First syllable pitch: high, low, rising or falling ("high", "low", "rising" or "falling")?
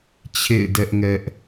falling